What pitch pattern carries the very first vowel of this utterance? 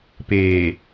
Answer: low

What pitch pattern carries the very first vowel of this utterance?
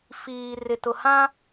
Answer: low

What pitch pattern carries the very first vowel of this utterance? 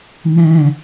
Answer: falling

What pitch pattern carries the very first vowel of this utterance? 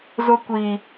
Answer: high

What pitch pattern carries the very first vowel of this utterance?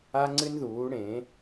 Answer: high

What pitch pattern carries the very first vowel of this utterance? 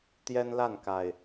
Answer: high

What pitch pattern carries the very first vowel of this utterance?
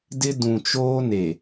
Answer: high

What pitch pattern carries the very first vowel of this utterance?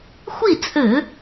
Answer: falling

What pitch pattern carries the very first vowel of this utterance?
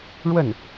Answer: falling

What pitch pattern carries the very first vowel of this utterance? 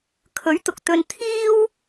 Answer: rising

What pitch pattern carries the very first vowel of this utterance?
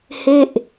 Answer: falling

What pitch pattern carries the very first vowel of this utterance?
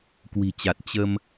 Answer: low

